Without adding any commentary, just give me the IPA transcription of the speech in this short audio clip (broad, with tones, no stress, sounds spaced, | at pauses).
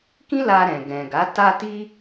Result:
k ĩ˦ l a˧ ɾ ɛ̃˨ ɡ ɛ̃˨ ɡ a˨˦ t a˧ t i˧